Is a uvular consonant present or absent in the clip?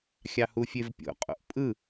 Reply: present